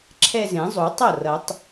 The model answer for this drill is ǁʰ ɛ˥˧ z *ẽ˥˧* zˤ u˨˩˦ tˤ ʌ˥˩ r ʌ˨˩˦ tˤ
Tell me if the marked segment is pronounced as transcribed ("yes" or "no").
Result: no